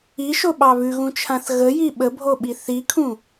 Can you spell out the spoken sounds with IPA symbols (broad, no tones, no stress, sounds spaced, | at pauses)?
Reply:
i ʃ o ɓ ɑ β ʉ ɣ ũ t͡ʃʰ ã θ ɣ ə j i ɓ ə bʱ o ɓ i θ i kʰ ũ